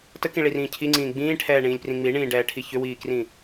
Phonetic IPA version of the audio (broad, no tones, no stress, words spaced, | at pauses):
təkĩɭirĩː cʰiŋ͡ǀĩː ɡ͡bĩːʈʰɛːɳĩːlʲprĩ ŋ͡miɳĩːɖɛːʈʰi çʏwiːkrĩ